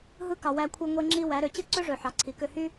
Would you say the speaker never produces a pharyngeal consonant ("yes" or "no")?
no